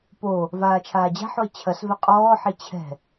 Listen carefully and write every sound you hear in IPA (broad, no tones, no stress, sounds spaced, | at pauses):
p o | v aː t͡ʃʰ aː d͡ʑ a̤ ħ o e̯ t͡ɕʰ ɐ s v ɛ qʼ ɔː ħ e t͡ɕʰ ɛ̤